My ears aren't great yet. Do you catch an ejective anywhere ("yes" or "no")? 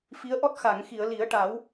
no